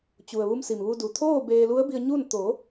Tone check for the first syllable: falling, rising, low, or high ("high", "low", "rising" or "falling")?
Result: low